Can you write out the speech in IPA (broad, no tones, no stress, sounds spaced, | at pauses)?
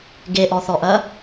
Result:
ɡ e ʔ ɔ θ ɔ ʔ ɐ